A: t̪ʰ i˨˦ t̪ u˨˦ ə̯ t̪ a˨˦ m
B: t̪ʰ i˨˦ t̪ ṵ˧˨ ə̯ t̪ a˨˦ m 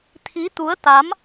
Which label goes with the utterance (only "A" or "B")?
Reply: A